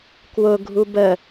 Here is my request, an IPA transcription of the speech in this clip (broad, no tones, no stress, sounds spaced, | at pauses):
k w ʊ ɡʱ u b ə